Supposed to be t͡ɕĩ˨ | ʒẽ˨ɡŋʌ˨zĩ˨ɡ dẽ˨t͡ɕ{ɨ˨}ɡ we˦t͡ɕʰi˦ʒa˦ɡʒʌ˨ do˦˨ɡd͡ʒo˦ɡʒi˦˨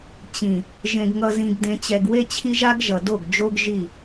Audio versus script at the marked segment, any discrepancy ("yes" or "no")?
yes